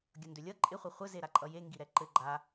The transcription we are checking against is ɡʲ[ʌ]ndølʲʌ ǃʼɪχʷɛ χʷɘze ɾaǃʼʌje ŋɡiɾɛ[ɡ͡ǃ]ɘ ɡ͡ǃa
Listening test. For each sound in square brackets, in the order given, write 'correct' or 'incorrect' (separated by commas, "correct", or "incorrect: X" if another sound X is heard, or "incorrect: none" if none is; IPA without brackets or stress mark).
correct, incorrect: ǃ